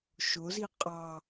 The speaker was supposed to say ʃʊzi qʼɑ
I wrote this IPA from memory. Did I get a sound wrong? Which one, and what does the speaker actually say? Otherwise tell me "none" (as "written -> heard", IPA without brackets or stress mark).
none